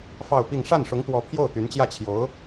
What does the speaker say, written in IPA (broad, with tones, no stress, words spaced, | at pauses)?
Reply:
fɑ˥˧ʊ̯pi˥˧ŋ ʂa˥˩nʂʊ˧˥ŋt̪wɔ˧˥ pʰjo˥˩ʊ̯t̪y˧˥nt͡ɕjä˥˩t͡ɕʰjo˧˥ʊ̯